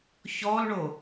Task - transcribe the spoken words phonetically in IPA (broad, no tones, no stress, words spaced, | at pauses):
çɔlɳo